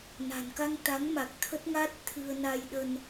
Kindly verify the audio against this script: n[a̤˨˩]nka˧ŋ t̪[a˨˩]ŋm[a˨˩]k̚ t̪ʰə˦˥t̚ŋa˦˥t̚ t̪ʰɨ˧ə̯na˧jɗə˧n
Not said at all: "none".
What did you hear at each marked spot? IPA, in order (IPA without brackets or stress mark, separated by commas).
a̤˨˩, a˨˦, a˨˩